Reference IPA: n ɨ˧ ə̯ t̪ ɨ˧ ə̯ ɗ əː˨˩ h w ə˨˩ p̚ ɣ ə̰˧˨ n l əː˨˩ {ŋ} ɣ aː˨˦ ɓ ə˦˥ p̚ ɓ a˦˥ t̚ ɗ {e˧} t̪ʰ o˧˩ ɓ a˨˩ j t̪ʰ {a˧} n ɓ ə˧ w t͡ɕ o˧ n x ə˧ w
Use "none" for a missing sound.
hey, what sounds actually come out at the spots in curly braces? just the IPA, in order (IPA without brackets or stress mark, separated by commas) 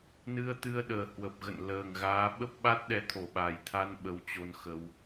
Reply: ŋ, ɛ˧, a˧